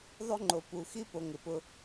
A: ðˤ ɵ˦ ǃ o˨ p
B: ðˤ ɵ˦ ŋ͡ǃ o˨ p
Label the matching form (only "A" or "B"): B